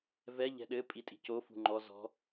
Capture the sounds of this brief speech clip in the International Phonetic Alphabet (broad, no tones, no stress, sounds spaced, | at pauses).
v ɛ ʎ ɛ̤ ɗ ɘ pʼ i tʼ i̤ c o f ṳ ŋ͡ǃ ɔ z ɔ̤